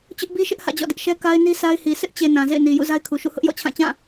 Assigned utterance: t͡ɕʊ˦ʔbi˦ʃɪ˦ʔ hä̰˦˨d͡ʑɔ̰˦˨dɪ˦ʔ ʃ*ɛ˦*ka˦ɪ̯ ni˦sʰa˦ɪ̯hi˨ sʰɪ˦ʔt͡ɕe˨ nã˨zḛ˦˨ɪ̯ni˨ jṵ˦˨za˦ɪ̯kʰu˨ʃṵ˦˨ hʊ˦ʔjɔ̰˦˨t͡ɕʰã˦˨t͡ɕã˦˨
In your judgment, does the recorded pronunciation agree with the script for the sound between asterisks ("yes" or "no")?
yes